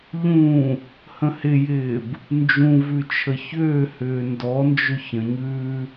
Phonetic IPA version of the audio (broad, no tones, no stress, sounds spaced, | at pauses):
ʎ ũ | h ə̃ h ɪ j ɪː b | n d͡ʒ ũ v ʉ t͡ʃʰ ə ç ʏː h ʏː n d ɔ n d͡ʒ ʏ ç ə̃ ɲ ʉː